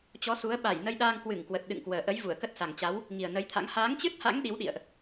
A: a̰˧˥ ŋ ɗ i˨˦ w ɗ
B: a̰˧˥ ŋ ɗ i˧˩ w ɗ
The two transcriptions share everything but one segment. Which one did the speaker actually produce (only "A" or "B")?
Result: A